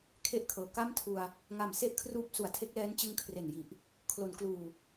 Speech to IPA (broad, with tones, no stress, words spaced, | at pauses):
kʰe˦˥ʔkʰɤː˩˦ ka˥˩mtʰu˧a̯ | ŋa˨˩mse˥˩ʔkʰruː˦˥p̚su˩˦a̯ tʰe˦˥k̚lɛː˦˥n t͡ɕɯ˦˥ŋkʰre˨˩nji˨˩ʔ | kʰlo˩˦nkluː˨˩